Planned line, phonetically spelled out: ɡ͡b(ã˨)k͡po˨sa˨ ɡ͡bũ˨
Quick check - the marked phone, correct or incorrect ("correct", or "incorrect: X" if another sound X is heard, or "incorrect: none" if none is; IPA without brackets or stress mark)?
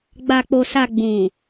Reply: incorrect: a˨